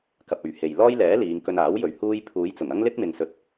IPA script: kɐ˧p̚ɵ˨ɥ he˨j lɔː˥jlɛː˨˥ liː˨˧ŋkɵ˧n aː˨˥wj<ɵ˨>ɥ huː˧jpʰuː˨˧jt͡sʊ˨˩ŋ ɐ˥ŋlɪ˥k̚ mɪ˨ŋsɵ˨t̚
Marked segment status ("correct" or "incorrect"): correct